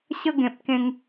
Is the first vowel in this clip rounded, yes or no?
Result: no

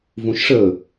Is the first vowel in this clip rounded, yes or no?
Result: yes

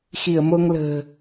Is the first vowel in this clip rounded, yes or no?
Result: no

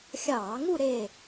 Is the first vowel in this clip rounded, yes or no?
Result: no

